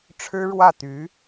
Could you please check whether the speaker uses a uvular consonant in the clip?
no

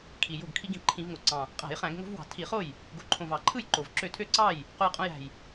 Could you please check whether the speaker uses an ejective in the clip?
yes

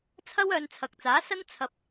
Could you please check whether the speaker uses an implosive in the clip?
no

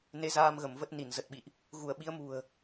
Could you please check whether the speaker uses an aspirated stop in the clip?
no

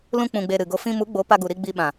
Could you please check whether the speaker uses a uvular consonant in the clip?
no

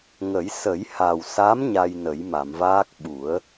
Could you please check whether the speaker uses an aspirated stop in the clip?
no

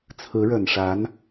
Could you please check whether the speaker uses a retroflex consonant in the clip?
yes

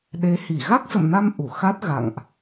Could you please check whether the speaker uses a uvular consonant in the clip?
no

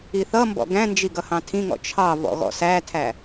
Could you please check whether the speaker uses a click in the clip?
no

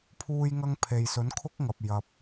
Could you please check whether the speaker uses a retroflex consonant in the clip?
no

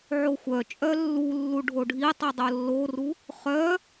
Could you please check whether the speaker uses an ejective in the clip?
yes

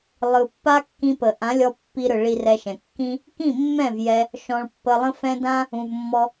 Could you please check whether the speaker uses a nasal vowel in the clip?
yes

